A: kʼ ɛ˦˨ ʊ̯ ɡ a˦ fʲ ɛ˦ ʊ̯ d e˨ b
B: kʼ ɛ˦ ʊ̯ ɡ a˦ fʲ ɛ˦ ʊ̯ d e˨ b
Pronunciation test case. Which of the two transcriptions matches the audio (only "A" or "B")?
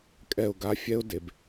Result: A